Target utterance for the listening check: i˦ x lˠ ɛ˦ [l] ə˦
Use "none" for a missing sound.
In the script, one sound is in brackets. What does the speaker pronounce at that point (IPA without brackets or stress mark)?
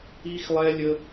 lʲ